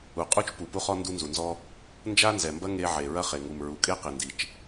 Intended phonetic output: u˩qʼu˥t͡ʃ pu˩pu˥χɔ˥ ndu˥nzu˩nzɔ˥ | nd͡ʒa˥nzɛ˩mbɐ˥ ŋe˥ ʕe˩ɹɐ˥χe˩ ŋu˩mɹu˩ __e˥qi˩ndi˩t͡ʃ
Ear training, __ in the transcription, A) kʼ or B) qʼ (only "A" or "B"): A